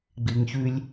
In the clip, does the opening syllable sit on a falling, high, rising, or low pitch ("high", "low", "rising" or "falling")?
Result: low